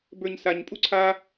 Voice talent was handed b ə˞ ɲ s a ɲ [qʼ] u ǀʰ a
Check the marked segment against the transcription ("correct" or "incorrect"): incorrect